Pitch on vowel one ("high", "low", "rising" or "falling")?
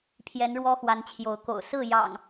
rising